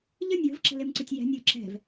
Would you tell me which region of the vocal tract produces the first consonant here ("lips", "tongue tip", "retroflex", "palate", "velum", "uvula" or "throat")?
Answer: palate